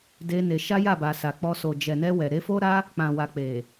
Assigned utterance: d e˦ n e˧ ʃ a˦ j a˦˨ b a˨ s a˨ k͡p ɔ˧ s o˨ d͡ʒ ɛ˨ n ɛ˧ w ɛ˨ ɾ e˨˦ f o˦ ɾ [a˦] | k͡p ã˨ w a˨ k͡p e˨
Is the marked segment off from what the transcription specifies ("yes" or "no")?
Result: no